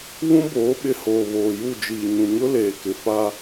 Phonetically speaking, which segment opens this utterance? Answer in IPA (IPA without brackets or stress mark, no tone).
β